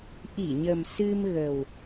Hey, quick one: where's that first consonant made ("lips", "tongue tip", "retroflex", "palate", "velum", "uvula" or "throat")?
throat